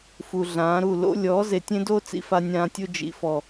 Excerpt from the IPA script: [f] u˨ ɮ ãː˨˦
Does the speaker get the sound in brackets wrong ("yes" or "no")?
no